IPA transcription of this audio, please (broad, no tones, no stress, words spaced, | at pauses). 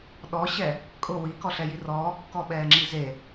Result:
ɗɔɕɛ | kʼʊ wikɔɬɛji rɔːkːɔɓɛːŋ͡ǁi ze